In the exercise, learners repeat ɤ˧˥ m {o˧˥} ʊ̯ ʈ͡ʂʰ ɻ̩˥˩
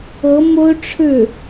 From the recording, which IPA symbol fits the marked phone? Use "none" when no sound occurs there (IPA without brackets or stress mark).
o˥